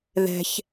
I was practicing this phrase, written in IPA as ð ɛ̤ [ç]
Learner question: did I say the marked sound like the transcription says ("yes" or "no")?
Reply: yes